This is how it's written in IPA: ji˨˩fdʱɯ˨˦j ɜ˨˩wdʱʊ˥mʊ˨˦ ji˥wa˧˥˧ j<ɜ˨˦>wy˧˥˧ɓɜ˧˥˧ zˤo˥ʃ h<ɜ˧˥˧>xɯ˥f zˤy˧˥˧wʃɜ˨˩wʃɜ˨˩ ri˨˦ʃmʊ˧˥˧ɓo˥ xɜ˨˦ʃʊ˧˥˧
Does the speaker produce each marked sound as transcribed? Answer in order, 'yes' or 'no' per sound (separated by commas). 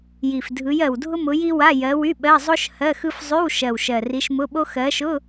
yes, yes